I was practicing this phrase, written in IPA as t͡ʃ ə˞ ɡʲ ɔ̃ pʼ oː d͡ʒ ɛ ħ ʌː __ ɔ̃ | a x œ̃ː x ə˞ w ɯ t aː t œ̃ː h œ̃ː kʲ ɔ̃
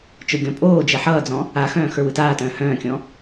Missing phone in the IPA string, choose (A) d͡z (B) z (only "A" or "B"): A